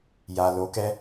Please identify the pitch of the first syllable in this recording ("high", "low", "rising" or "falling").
low